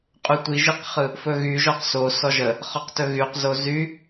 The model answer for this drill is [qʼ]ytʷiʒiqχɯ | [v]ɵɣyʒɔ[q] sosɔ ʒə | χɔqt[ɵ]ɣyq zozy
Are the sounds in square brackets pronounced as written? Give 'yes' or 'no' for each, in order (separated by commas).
yes, no, yes, yes